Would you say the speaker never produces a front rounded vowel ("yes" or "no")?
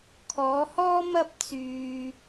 no